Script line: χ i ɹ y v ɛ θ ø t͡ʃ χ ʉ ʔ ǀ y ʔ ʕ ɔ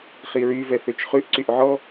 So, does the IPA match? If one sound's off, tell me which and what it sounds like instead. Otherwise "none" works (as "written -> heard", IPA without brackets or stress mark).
none